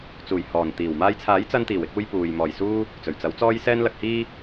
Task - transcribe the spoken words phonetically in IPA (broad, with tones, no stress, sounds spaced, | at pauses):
t͡s uː˨˩ j h ɔː˨˩ n t̪ iː˨˩ w m aː˧ j t͡sʰ aː˨˥ j t͡s ɐ˧ n t̪ iː˨˩ w ɪ˧ k̚ uː˧ j p uː˨ j m ɔː˨˩ j s uː˧ | t͡s ɵ˨˩ ɥ t͡s ɐ˨˥ w t͡s ɔː˧ j s ɛː˧ n l ɐ˨ k̚ h iː˧